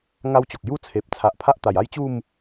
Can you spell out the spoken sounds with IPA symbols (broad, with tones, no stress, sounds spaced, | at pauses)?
ŋ a˦ w t͡ɕ o˨ k̚ j u˦ t͡sʰ e˨ p̚ t͡sʰ a˨ ʔ pʰ a˦ ʔ t̪ a˨˩ j a˦ j t͡ɕ u˥˧ m